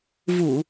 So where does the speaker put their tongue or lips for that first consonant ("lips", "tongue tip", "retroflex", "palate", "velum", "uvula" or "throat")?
lips